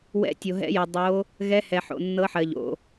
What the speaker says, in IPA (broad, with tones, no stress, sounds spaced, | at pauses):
w ɛ̰˧˥ tʲ o˨ ɦ ɛ̰˧˥ j ɤ˨ dˤ o˧˥ | ɣ ɛ˧˥ h ɛ˨ ħ o̰˨ nː ɤ˧˥ ħ ɜ˨ ʎ o̰˨